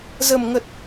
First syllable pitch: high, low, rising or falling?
low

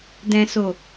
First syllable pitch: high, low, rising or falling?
low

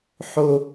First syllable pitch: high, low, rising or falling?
high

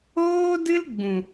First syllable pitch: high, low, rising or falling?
high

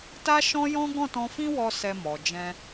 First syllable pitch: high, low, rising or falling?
high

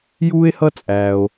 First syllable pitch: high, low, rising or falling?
high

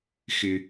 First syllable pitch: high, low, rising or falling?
low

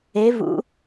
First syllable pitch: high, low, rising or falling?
rising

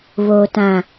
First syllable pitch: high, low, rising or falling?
low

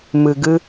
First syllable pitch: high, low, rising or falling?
low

